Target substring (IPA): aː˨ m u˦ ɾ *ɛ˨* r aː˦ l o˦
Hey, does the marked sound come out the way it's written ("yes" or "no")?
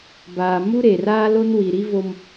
no